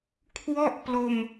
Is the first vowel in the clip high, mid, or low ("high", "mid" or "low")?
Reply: mid